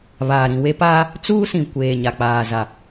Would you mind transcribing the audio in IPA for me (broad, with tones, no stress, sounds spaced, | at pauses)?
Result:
β aː˨ ɾ ĩ˨ w e˦ p aː˦ | t͡s uː˦ s ĩ˨ kʷ eː˨ ɲ a˨ k͡p aː˨ z a˨